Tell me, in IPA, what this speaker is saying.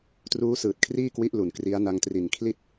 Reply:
truː˦˥sɯː˨˩t̚kʰriː˥˩kwi˦˥ʔ lu˨˩nkri˦˥a̯na˦˥ŋ tri˨˩nkʰli˥˩t̚

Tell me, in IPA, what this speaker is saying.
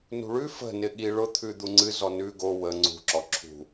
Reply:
nṳɭʉ fə̤ nɪɠi ɭʊ t̪ʰʉd̪uŋ͡ǀɨ zɔnʉ ɡo wə ŋ͡ǀṳ ǁɔǁʰṳ

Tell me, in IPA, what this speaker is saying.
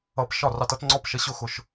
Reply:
ʌ˧p ʃɒ˥˩rɑ˧tʌ˩˥t ŋ͡ǀɔ˥˩pʃə˧ɕʊ˥˩ xʊ˩ʃ

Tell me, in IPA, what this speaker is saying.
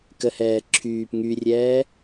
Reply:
kəhɛː ǁʰyːp ŋyrʲɛː

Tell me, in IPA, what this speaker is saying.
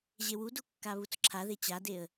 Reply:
ʑewudu kːaβut͡sǁʰaðe t͡ɕadeə̯

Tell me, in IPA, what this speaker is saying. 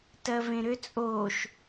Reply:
tɜvẽɾʏ t͡sʼoʃ

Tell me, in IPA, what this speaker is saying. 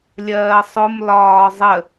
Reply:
lʲɜːsˤʊm lɒːzˤə

